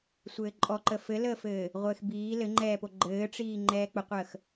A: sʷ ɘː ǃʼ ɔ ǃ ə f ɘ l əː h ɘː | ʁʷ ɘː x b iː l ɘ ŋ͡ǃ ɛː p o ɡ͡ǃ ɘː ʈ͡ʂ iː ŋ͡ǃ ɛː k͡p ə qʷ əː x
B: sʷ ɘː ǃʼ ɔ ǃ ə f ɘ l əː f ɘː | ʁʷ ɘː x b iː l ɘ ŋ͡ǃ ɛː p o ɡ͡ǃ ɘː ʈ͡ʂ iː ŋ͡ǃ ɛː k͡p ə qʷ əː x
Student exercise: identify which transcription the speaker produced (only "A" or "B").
B